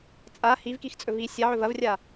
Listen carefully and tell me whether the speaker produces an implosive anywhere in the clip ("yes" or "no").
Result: no